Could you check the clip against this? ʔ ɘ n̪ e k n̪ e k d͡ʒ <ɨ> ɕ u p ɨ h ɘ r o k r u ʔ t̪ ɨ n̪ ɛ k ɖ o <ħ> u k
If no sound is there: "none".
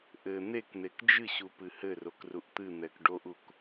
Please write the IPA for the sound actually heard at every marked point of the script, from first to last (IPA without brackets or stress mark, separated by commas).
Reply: ɨ, ʔ